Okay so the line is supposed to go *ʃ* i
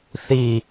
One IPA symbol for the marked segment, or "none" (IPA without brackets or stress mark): θ